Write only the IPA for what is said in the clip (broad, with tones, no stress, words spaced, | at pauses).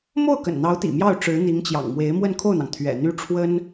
mo˥˩ʊ̯kə̰˨˩nn̪ɑ˧˥ʊ̯ t̪ḭ˨˩mjɑ˥˩ʊ̯ ʈ͡ʂɻ̩˧˥n̪i˧˥ŋt͡ɕjɑ̰˨˩ŋmwe˧˥ɪ̯ mwə˥˧nkʰo˥˩ʊ̯n̪ɑ˩ŋ t̪ʰɥɛ̰˨˩n̪y˥ʈ͡ʂʰwə˥n